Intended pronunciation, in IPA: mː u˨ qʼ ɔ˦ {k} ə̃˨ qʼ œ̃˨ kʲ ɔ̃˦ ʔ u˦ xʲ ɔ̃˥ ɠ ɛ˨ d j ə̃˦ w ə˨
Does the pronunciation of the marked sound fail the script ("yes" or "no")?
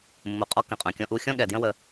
no